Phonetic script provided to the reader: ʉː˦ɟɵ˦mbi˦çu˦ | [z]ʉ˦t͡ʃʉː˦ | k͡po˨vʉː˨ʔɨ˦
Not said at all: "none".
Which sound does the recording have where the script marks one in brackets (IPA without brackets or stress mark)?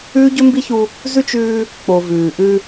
z